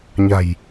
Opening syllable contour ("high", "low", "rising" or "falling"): low